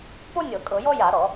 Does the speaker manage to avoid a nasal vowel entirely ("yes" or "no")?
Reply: yes